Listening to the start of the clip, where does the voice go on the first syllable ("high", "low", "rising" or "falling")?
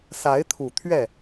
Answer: rising